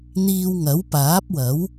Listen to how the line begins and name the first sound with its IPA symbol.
n̪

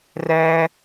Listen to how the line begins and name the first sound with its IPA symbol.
r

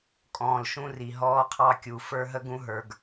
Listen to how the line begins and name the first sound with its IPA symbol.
kʼ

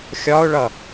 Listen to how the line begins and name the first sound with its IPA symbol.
xʲ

